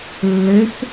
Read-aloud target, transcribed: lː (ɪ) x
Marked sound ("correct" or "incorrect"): correct